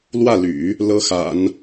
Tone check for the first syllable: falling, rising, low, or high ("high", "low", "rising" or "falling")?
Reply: falling